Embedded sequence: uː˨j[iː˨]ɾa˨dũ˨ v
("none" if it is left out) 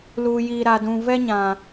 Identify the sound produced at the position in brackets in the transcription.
iː˨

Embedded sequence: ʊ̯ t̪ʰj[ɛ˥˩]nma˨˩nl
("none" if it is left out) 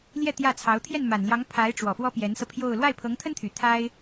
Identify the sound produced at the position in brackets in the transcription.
ɛ˥˩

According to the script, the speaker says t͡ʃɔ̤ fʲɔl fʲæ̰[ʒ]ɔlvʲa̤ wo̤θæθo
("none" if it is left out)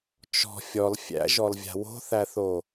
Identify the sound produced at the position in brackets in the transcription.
ʒ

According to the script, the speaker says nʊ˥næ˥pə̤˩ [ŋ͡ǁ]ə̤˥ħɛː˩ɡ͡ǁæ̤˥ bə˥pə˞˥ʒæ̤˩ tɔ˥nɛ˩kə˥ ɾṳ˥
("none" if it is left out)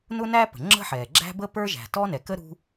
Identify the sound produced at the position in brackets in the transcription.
ŋ͡ǁ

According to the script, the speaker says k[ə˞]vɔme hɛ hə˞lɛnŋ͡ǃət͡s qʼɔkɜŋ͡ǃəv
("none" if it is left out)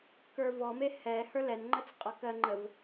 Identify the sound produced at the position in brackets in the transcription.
ə˞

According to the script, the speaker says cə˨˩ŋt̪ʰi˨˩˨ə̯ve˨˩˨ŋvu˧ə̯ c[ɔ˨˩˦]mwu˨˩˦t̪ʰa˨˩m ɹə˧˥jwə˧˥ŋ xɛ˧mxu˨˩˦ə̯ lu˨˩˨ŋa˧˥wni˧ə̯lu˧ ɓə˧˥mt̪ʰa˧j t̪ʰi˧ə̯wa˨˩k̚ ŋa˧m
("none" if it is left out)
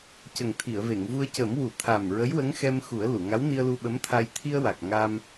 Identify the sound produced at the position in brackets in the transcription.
ə˨˩˦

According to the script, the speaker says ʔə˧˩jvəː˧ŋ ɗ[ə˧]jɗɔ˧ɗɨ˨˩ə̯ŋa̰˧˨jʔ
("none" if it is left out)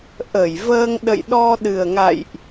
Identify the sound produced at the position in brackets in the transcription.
ə̰˧˨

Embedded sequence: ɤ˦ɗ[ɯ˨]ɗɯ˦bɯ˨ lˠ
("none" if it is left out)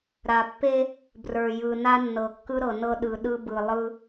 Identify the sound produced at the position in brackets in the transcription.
ɯ˨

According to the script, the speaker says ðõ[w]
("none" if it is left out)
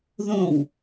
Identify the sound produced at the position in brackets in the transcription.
w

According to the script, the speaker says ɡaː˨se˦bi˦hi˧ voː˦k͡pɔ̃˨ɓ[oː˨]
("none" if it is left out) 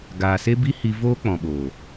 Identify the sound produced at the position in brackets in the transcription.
oː˨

